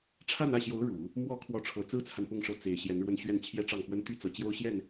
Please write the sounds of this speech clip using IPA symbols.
ʈ͡ʂʰ a˥˧ n ä˥˩ ɕ j o˧˥ ʊ̯ ɻ u˨˩˦ | m w ɔ˧˥ kʰ w ɔ˧˥ ʈ͡ʂʰ ɤ˨˩ t͡s ɹ̩˥ t͡sʰ a˨ n p ʊ˥˧ ŋ ʂ ɤ˥˩ t͡s e˨˩ ɪ̯ ɕ j ɛ˧˥ n ɻ w ə˥˧ n ɕ ɥ ɛ˥˩ n t͡ɕʰ j ɛ˥ ʈ͡ʂ ɑ˥˩ ŋ f w ə˥ n t̪ y˥ t͡s ɤ˨˩ t͡ɕ j o˥ ʊ̯ ɕ j ɛ˥˩ n

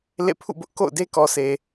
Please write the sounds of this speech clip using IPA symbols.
l ḛ˦˨ pʰ ṵ˦˨ b ʊ˦ ʔ k o̰˦˨ ʊ̯ d e˦ k ɔ˨ sʰ e˨

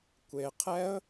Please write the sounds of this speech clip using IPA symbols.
kʷ e qʰ ɛ ə̯

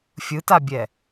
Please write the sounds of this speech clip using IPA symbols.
fʲ ɯ t a bʲ ɛ

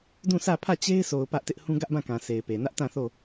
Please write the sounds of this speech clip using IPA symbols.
d ũ˦˨ sʰ ä˦˨ pʰ ä˦˨ t͡ɕ e˦ ɪ̯ s o˨ ʊ̯ p ä˦ ʔ t ɪ˦ ʔ h ũ˦ ɡ ä˦ ʔ b ã˦˨ k ã˨ sʰ e˨ ɪ̯ p e˨ n ä˦ ʔ t ã˦˨ θ o˦˨

